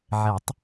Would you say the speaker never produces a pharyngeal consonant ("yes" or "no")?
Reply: no